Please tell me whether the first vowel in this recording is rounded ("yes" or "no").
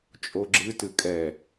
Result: yes